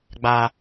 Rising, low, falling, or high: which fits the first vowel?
high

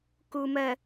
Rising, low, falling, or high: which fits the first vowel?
low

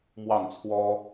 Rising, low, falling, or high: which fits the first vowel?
falling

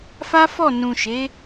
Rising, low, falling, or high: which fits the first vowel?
high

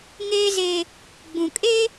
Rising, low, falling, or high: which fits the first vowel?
high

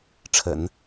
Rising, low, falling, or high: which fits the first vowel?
low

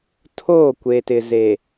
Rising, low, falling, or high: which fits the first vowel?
falling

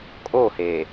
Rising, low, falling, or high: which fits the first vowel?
falling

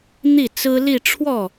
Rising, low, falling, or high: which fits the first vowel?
falling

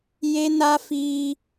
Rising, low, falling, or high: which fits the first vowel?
high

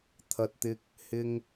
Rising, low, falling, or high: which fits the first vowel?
low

